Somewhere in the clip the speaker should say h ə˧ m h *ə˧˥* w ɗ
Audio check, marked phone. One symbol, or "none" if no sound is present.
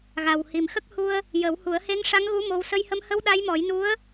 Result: ə˧˥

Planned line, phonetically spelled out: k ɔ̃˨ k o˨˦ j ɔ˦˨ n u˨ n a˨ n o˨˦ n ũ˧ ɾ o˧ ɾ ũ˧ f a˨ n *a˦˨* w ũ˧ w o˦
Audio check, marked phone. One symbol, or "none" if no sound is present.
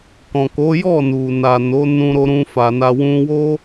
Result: a˨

